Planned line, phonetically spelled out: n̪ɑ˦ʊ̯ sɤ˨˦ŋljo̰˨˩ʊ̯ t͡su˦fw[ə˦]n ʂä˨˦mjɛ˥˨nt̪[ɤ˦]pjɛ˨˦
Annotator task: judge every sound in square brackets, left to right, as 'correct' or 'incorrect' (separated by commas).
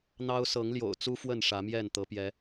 incorrect, incorrect